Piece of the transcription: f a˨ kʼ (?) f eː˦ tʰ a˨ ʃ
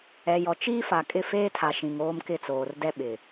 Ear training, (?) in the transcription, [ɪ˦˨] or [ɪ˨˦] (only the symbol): ɪ˦˨